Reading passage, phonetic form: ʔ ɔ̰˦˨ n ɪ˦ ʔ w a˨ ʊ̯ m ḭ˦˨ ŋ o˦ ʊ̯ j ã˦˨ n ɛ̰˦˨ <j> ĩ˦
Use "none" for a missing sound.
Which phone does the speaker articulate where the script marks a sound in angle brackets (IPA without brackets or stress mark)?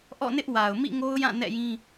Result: j